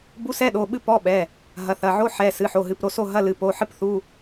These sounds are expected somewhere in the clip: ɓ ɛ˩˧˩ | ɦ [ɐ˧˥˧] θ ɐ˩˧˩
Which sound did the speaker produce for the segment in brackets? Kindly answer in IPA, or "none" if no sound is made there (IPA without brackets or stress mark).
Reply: ɐ˩˧˩